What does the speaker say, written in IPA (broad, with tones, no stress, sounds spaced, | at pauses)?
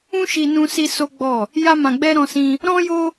ũ˦ ʃ i˧ n ũ˧ s i˧ s o˦ ɡ͡b ɔ˦˨ | j a˦ m ã˧ ɡ͡b ɛ˦ ɾ ɔ̃˧ s ĩ˧ | ɾ ɔ̃˦ j o˦